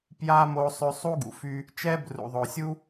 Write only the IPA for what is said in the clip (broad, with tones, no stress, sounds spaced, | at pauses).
p j a˥ m o˦ sˤ ø˦ sˤ u˥ ɡ ṵ˩ f y˦ | t͡ʃ ɛ˥ b r ṵ˩ ðˤ o˩ sʲ u˥